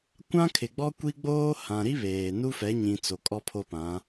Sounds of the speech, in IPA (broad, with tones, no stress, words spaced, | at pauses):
kʷã˦ kʰɪ˨ɡ͡bɔ˦kʷi˦ɡ͡boː˦ hã˨ɾi˦ βeː˨ nu˦fɛ˨˦ɲĩ˨ t͡so˨kʼɔ˦ pʰo˦pã˨˦